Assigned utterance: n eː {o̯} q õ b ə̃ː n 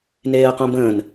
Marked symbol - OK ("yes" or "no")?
no